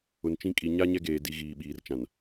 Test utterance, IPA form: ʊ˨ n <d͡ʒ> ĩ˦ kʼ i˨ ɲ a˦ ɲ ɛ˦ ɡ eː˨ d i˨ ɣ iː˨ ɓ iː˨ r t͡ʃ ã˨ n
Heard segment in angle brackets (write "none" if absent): t͡ʃ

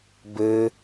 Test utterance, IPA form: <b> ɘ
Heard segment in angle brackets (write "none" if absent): b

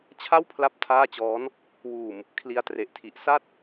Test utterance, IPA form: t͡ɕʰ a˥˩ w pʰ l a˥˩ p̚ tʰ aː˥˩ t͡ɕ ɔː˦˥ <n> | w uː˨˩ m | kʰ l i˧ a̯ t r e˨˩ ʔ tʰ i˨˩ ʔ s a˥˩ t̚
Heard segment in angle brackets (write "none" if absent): n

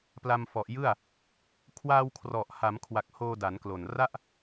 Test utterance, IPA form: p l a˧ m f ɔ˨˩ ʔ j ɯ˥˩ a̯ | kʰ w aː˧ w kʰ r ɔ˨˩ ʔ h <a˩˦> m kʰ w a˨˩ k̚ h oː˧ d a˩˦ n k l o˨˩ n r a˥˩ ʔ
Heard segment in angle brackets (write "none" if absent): a˩˦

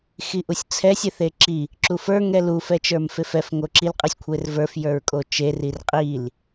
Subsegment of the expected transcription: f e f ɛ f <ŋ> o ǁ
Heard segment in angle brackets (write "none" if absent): ŋ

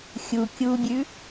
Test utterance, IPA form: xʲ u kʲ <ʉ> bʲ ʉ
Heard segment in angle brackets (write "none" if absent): u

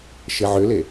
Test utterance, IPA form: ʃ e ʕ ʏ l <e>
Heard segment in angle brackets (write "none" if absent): e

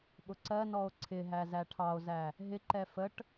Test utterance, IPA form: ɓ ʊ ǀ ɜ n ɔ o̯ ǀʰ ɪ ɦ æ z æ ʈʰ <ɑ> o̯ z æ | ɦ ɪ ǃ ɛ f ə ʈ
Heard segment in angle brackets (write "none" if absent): ɑ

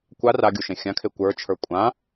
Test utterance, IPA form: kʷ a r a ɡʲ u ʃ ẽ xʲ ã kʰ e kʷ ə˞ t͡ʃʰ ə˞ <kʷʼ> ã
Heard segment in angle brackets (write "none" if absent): kʷʼ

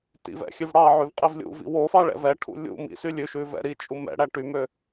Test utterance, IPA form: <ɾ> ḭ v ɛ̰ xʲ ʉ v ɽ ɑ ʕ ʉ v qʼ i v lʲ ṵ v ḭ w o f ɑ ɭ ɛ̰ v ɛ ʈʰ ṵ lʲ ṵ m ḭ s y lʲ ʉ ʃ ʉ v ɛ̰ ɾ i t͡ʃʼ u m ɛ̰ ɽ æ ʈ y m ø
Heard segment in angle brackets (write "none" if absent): t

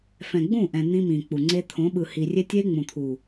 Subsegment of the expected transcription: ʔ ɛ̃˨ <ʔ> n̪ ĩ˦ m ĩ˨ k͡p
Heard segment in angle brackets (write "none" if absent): none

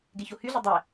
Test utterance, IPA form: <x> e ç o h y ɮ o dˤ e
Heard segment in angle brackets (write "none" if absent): ɡ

